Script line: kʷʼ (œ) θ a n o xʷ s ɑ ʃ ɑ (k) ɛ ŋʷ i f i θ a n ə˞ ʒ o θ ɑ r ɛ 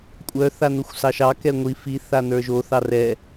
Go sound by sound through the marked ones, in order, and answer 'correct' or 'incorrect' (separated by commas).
correct, correct